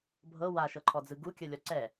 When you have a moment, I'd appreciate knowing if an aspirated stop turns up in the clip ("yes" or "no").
yes